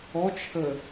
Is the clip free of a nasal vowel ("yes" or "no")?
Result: yes